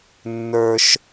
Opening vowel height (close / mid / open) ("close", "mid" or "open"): mid